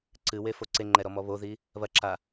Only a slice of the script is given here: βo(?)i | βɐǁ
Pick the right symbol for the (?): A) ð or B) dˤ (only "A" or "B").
A